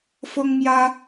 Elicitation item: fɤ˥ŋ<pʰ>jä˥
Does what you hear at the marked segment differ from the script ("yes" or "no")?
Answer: yes